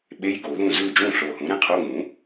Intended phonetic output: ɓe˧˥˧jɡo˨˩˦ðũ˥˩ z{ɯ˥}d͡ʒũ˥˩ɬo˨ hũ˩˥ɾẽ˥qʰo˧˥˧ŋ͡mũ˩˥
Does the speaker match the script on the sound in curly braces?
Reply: no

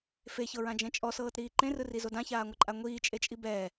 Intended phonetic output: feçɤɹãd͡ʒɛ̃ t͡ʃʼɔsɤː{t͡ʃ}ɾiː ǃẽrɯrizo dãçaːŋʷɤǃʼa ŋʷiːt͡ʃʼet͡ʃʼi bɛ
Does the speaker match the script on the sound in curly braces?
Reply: no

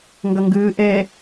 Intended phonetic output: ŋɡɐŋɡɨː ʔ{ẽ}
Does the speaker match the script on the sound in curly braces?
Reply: no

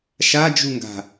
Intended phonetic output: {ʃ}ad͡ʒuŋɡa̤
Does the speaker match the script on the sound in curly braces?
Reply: yes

